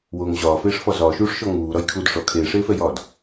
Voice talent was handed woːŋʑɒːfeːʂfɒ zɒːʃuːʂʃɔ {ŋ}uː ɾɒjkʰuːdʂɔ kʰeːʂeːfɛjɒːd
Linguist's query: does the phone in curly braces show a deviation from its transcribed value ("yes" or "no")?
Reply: no